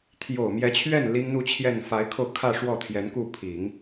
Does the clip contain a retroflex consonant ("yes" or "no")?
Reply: yes